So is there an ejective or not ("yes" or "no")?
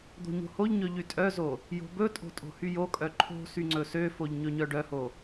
yes